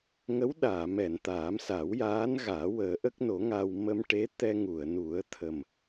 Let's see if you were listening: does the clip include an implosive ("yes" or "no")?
yes